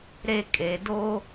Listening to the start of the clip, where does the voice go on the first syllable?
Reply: falling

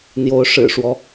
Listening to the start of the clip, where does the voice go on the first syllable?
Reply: rising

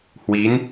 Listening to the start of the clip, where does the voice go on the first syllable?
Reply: rising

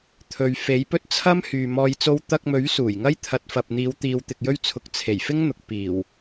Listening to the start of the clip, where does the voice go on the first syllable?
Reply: low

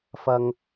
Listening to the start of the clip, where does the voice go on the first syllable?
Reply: low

